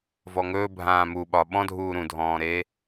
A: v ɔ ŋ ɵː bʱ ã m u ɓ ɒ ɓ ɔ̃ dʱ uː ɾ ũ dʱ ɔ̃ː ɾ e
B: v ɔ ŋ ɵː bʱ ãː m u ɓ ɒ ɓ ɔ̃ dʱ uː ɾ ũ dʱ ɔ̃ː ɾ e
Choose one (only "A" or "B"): B